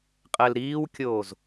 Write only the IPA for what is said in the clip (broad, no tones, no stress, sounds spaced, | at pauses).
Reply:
qʼ ɛ l ɾ iː w kʲ oː z